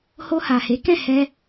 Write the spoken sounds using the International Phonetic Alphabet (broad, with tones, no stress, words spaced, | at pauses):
ho˧ha˨he˨˦ kɛ̃˦˨hɛ˧